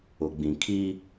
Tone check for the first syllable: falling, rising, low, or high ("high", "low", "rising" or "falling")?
low